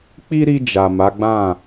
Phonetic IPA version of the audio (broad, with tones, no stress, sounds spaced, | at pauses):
k͡p i˦ ɾ i˧ d͡ʒ a˨ m a˨˦ ɡ͡b ã˦˨